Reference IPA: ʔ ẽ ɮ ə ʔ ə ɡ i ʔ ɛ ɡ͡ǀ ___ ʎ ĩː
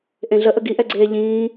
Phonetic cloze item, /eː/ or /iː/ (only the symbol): eː